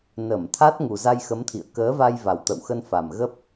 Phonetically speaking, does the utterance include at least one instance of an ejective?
no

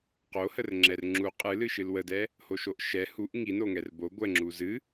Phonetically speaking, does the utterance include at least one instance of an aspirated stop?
no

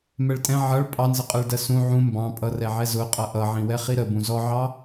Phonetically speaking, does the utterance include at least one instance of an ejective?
yes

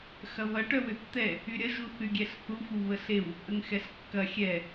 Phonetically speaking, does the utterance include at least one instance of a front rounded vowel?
yes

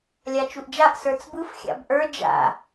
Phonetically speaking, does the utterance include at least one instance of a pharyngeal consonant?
no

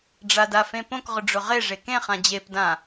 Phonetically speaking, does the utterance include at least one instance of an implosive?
no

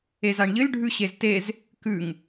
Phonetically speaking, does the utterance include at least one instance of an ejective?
no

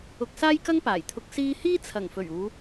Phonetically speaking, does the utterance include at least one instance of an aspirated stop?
yes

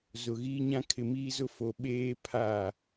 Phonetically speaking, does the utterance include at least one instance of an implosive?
yes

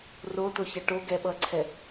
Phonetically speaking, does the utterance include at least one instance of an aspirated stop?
yes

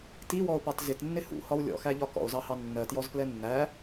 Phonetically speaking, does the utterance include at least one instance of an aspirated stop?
no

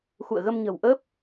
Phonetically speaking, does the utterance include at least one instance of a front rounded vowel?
no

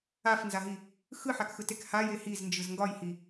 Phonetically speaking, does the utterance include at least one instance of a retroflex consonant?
no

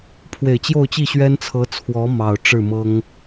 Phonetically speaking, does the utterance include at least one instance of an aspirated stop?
yes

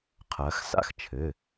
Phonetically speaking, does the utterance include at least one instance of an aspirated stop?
yes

